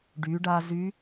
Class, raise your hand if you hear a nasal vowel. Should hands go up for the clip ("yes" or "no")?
no